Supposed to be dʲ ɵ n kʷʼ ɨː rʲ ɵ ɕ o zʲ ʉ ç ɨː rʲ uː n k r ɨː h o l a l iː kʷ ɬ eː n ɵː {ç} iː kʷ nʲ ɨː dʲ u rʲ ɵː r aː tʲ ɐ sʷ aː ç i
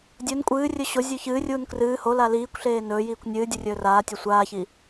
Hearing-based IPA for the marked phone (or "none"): j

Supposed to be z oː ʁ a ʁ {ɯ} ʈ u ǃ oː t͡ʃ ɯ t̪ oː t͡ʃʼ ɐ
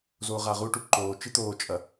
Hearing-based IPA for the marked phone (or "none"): u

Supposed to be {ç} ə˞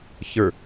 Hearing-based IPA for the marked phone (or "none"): ç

